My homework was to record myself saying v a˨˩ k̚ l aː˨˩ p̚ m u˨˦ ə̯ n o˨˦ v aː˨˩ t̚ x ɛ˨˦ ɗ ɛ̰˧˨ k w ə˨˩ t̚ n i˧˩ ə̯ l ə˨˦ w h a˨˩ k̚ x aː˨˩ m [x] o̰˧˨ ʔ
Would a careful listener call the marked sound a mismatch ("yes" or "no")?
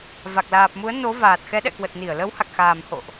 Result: yes